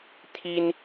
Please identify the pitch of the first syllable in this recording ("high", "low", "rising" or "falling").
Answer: high